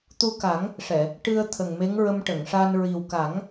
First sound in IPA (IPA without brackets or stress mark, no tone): t̪